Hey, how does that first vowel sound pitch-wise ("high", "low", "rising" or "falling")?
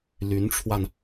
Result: rising